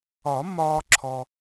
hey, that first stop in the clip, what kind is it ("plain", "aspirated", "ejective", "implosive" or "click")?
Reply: click